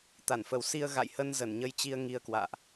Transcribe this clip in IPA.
t̪a˧˩nfə˨˩w si˧ə̯ ɣa̰˧˨jhə˧n zə˧˩nɲə˧j t͡ɕi˧ə̯ ŋi˧ə̯kwa̰ː˧˨ʔ

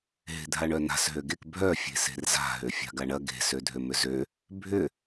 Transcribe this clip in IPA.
ɦe̤dʱaɳœna̤s ɦøɡek bʱœ fʲe̤se̤rza̤ ɦøfʲa̤ɡaɳɐ ɡe̤ sødʱømʏzø | bʱʏ

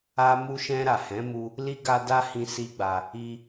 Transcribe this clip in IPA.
a˧mu˧ʃɛ̃˧ɾa˨ hɛ̃˨˦mu˧ | li˦ɡa˦ da˦hĩ˧si˦ɡ͡ba˧ | i˧

